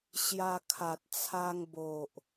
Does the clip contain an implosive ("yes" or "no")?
no